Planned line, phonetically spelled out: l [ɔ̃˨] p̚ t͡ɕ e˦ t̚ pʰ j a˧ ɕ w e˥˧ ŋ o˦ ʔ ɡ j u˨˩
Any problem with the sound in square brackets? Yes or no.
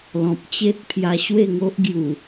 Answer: no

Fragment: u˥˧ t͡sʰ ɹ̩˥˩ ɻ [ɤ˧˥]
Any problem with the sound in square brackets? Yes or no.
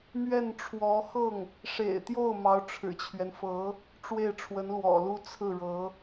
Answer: no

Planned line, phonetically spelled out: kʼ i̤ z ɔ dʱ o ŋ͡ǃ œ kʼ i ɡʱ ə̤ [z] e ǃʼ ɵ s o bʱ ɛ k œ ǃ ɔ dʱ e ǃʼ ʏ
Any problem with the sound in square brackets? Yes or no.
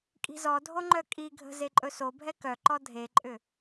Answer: no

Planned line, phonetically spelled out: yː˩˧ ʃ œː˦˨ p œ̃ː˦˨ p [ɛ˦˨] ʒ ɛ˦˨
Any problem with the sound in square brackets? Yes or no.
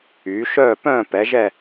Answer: yes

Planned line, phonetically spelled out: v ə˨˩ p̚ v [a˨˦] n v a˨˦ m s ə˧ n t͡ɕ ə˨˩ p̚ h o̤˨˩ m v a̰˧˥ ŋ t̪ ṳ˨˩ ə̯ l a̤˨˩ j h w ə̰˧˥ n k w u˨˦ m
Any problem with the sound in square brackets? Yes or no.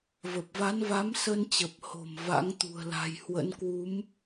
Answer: no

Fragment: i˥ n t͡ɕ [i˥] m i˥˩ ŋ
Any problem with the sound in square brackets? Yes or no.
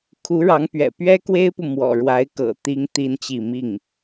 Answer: yes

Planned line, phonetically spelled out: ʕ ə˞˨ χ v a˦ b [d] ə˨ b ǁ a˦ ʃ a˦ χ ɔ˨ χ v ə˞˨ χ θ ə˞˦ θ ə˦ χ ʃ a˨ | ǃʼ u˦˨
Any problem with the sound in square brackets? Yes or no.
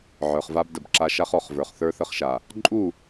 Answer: no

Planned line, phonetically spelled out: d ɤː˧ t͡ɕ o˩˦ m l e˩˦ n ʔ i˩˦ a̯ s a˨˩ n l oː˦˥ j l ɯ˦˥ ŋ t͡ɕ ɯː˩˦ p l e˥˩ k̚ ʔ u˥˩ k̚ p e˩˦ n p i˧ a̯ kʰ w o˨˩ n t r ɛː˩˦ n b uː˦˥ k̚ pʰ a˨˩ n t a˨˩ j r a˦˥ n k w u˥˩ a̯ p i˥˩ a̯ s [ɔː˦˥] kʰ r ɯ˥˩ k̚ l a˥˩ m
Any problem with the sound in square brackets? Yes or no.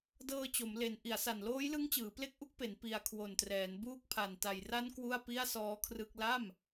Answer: no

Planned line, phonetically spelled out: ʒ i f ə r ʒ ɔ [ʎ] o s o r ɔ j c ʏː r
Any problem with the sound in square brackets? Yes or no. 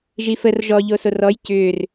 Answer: no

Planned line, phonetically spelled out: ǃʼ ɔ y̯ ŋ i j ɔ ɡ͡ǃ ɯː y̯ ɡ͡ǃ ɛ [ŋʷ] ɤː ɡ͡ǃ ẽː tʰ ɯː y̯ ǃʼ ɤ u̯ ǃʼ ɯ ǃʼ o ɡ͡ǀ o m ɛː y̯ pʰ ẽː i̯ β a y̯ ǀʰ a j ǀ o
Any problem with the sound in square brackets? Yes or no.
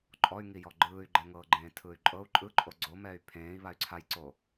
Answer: yes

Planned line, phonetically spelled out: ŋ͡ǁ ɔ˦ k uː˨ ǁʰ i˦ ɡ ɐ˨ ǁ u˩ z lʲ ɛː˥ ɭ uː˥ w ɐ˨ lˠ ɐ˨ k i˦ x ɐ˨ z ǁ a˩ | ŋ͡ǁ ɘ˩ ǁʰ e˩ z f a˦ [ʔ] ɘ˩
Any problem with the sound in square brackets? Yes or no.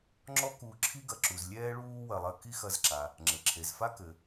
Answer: yes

